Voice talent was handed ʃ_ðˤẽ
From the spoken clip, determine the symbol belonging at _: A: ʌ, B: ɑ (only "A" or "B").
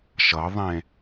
A